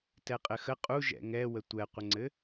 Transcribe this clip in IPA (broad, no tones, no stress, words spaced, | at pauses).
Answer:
tɛqʼɘxə qʼu ʒɛ̰ŋɛwə tʷɛqʷəŋ͡ǀɘ